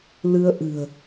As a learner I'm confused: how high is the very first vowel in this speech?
high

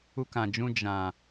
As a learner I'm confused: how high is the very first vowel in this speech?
high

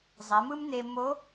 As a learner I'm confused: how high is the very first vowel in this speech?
high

